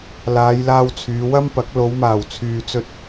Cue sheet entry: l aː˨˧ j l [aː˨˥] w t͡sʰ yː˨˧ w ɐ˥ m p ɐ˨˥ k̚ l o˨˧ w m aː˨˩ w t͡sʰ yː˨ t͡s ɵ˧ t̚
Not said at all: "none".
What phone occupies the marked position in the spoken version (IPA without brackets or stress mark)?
aː˧